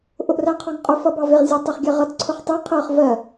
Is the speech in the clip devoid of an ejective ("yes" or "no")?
no